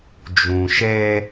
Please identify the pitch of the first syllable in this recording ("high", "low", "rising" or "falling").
low